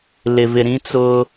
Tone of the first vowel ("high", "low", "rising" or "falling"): low